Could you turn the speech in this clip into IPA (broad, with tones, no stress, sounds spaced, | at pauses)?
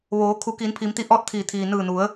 ʋ oː˩˧ kʰ u˩˧ k iː˩˧ n pʰ i˩˧ m t̪ i˧ ʔ ɔː˥˨ t̚ t̪ʰ iː˧˩ t̪ʰ iː˩ n ɯː˧˩ n u˩˧ ə̯